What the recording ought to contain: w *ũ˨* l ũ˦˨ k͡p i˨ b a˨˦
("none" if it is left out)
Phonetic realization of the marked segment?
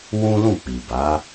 ũ˦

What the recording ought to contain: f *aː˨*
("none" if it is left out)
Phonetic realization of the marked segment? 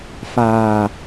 aː˨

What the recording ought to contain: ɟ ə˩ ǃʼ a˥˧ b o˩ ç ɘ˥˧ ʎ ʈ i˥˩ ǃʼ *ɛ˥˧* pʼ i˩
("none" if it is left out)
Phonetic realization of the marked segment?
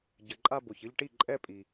ɛ˥˧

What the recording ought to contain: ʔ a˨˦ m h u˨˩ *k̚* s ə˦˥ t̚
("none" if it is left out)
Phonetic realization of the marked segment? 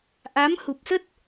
p̚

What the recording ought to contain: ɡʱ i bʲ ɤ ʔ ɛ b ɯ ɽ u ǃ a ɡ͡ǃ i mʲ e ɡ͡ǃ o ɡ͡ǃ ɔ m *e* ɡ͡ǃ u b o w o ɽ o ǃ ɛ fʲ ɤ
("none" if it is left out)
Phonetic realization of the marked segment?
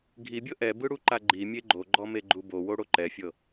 e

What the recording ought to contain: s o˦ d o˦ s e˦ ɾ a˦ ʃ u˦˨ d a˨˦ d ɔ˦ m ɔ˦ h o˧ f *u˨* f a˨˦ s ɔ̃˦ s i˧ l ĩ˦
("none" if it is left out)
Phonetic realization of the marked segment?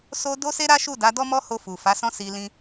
u˨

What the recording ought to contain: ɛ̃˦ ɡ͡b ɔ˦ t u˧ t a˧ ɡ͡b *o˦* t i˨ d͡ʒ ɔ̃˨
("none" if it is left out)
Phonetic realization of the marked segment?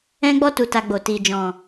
o˨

